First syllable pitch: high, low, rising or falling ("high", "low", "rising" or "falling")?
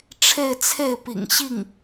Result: falling